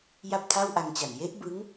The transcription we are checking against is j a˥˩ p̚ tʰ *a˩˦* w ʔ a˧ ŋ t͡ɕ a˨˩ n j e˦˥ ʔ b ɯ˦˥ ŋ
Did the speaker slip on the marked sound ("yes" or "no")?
yes